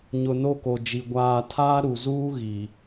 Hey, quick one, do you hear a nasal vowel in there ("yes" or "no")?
no